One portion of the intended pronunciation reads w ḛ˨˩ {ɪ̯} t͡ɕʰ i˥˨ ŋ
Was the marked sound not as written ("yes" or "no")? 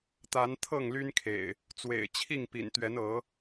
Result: no